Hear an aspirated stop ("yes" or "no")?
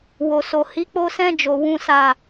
no